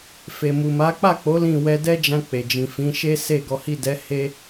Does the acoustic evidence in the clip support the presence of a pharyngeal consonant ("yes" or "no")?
no